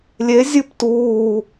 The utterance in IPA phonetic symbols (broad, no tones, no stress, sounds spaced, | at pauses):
lʲ e zʲ ɨ p t uː